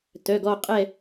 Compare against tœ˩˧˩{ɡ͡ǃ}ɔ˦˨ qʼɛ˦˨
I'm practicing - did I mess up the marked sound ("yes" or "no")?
yes